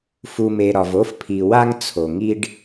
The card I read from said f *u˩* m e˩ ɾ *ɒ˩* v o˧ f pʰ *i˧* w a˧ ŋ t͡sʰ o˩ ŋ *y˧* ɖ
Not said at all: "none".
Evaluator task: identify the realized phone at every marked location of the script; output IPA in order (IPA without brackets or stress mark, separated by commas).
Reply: u˩, ɒ˩, i˩, i˧